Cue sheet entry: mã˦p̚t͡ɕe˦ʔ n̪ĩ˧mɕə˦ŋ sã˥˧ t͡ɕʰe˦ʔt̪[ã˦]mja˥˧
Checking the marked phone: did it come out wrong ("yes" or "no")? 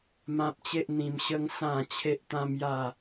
no